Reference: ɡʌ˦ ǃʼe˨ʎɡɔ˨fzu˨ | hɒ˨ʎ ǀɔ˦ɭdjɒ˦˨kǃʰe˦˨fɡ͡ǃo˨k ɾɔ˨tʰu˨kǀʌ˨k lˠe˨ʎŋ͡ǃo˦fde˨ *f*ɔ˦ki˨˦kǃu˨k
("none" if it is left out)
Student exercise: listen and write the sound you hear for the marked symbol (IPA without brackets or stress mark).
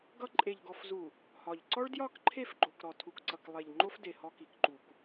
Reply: h